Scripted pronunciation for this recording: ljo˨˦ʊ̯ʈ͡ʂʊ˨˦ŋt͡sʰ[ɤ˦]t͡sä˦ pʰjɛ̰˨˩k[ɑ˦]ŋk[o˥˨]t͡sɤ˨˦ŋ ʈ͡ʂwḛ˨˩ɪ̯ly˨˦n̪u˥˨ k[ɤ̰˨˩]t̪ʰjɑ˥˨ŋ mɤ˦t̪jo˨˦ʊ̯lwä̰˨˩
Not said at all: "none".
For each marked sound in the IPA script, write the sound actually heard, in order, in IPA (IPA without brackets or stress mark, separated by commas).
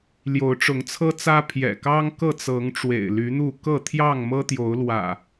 ɤ˦, ɑ˦, ɤ˥˨, ɤ˥˨